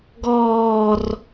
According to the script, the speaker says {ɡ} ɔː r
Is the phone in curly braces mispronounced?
no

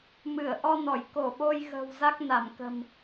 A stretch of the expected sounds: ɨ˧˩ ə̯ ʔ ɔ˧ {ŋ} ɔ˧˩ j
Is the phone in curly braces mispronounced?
yes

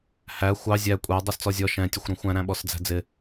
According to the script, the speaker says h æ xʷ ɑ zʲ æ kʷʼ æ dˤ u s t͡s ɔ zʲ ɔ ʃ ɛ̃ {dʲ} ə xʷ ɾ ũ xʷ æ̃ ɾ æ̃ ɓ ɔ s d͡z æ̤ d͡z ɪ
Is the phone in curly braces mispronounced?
yes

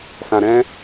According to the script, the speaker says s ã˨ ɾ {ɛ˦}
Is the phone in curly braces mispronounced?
yes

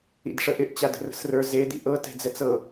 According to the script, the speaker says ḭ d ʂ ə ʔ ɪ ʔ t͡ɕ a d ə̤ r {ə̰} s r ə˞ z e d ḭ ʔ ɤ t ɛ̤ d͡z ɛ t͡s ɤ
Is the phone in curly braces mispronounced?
yes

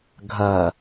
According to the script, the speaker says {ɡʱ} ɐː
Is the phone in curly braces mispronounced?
no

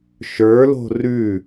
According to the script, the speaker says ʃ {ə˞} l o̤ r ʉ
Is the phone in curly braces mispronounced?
no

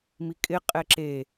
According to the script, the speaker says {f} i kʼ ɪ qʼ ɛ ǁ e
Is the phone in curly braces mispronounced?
yes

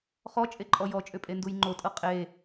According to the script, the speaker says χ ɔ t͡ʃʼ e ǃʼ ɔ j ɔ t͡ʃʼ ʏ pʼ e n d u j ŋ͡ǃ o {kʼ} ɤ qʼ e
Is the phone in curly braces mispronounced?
yes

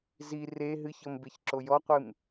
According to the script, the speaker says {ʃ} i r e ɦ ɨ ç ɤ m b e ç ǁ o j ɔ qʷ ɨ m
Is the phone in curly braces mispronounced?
yes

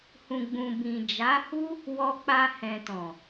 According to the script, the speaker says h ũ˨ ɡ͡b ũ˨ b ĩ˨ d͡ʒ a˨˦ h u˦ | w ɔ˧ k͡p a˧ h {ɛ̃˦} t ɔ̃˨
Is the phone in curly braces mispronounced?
yes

